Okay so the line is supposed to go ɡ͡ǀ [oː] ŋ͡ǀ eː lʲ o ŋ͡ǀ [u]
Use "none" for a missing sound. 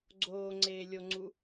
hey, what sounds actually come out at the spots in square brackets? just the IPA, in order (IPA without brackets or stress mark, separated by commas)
oː, u